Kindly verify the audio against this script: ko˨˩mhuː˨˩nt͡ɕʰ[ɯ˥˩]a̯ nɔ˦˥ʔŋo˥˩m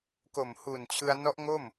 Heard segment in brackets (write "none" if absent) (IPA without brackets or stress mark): ɯ˧